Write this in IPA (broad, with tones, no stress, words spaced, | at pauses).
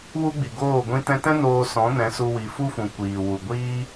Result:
wu˦ ɡ͡bi˨ɡoː˦˨ ɡʷĩ˧tɛ̃˧tɛ̃˦ noː˧sɔ̃˨˦nɛ̃˨˦ su˧wi˨fu˦fũ˨ kʷiː˨wu˨ɡʷiː˦